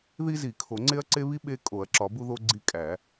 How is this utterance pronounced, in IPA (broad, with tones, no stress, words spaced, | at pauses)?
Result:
ði˦zi˨˩˦ kʰo˨˩˦ŋ͡ǀe˦ɐ̯ǀe˦ βi˦ ɓe˦ kʼo˨˩˦ɐ̯ǁɒ˨˩˦bu˦ðo˦ ɡ͡ǀi˦kʼæ˨˩˦